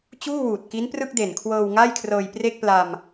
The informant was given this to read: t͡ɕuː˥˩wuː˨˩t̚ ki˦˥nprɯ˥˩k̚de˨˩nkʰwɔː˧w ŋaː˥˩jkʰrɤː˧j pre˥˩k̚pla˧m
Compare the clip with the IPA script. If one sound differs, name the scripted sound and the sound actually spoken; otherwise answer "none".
ɔː˧ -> ɤː˧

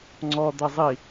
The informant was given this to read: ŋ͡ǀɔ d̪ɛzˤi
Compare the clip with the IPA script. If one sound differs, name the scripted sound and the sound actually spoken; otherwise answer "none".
none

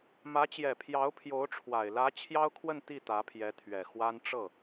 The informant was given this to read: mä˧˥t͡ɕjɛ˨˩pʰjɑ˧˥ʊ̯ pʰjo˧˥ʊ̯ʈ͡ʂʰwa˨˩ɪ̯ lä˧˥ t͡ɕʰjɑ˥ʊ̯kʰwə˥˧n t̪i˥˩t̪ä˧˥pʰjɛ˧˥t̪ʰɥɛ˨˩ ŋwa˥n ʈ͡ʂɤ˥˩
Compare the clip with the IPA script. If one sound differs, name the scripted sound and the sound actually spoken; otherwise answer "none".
ŋ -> x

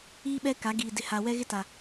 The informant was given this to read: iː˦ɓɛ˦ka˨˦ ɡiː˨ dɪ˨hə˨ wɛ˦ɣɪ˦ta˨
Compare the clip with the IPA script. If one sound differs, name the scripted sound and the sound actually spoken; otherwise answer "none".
ə˨ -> a˨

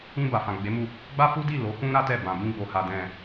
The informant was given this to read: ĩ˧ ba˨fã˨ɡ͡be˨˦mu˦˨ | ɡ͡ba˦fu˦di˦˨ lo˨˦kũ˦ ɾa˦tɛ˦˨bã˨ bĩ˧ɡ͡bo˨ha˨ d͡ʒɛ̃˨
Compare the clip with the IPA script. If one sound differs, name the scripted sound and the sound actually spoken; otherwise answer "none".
d͡ʒ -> d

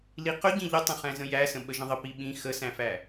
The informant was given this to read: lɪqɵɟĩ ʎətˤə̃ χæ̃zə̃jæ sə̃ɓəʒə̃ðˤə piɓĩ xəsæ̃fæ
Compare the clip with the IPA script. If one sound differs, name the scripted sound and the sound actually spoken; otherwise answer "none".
ɪ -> i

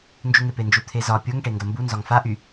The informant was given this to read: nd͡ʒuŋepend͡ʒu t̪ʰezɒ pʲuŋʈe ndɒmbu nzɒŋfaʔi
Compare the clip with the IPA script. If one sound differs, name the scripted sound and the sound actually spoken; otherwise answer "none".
i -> y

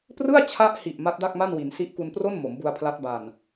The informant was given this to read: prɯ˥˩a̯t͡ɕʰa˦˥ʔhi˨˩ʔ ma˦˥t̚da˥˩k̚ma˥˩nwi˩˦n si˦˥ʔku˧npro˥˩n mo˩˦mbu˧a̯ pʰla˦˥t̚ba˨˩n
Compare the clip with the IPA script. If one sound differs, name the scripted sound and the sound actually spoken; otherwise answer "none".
none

